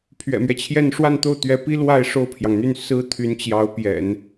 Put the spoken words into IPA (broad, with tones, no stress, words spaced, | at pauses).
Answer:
pʰɥɛ̰˨˩mɥɛ˦t͡ɕʰjɛ˥˧n ʂwa˥˧nt̪o˥˩ʊ̯t̪ɥɛ˧˥pi˥ lwa˥˧ɪ̯ ʂo˥˩ʊ̯pʰjɑ˩ŋn̪y˥˩n sɹ̩˥t̪ʰy˧˥n t͡ɕjɑ˧˥ʊ̯pjɛ̰˨˩˦n